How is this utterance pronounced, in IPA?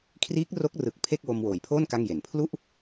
kʰ r iː˦˥ k̚ r o˦˥ k̚ r ɯ˨˩ k̚ pʰ e˥˩ k̚ w o˧ m w oː˨˩ j pʰ oː˥˩ n k a˥˩ ŋ j e˨˩ n pʰ l u˥˩ ʔ

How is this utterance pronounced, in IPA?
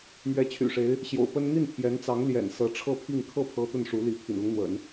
m ɥ ɛ˧˥ t͡ɕʰ y̰˨˩ ʂ e˧˥ ɪ̯ | ɕ j o̰˨˩ ʊ̯ p ə˥ n n̪ i˥˩ n pʰ j ɛ˧˥ n t͡s ɑ˧˥ ŋ l j ɛ̰˨˩ n s ɤ˧˥ ʈ͡ʂʰ ɤ˥˧ pʰ i˥˧ ŋ kʰ ɤ˥˩ pʰ ɤ˥ t̪ ə˥˩ n ʂ u˧˥ l i˧˥ pʰ ḭ˨˩ n l ʊ˦ ŋ n̪ w ə̰˨˩˦ n

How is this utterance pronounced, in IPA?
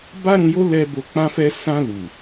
b a˦ ɾ ũ˧ j o˦ l ɛ˧ b o˧ k͡p ã˦ f ɛ˦ s ã˧ l u˨

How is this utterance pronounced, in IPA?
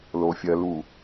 l o˨ fʲ ɜ˨ l u˨

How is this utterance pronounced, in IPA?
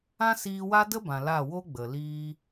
ã˦ s iː˧ w a˦ d ə˦ b ã˨ l a˦˨ w o˧ ɡ͡b ə˨ l iː˦

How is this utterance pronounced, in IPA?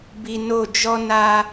b i˨ n o˦˨ d͡ʒ ɔ˦ n a˦

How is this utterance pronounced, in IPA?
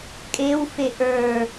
kʼ e w f e ʔ ə˞

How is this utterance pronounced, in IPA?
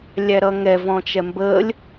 lʲ æ ɾ ʌ ŋ ɛ v ɔ̃ t͡ʃ ɛ m b ə lʲ

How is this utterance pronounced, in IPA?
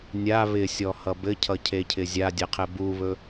nʲ a β ɪ sʲ ɔ h ʌ b ɘ cʰ ʌ cʰ e cʰ ɪ zʲ a dʲ e qʰ ɘ b u β ɵ

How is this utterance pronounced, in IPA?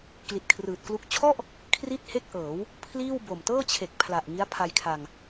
k l i˨˩ t̚ kʰ r ɯː˨˩ t̚ k l u˦˥ k̚ t͡ɕʰ ɔ˥˩ ʔ | kʰ r i˥˩ t̚ h e˥˩ k̚ ʔ ɤː˩˦ w | pʰ l iː˥˩ w b o˨˩ m t ɤː˥˩ t͡ɕʰ e˨˩ k̚ pʰ l a˨˩ ʔ ŋ i˦˥ a̯ pʰ a˧ j kʰ a˧ ŋ

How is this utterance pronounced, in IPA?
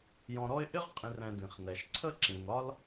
j ɔ̃˨ ɾ ɔ˦ ɪ̯ ʔ ɪ˥ ʁ qʼ ĩ˨ r ɛ̃˨ d ĩ˩ χ n ɛ˩ ʃ ǀʰ ə˥ ǁ ĩ˩ n ɒ˦ l

